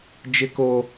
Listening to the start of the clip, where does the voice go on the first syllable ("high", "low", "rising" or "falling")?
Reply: high